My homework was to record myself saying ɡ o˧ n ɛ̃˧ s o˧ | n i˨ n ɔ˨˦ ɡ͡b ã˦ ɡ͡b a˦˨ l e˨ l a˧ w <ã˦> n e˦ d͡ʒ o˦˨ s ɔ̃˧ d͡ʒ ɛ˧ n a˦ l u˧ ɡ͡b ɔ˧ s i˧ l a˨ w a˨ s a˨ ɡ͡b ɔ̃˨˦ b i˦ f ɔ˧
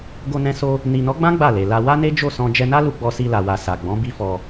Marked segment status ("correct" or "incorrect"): incorrect